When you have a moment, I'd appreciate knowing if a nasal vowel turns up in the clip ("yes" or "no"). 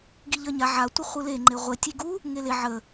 no